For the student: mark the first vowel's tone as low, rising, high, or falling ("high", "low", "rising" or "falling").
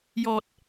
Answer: low